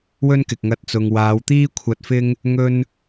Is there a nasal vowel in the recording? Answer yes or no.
no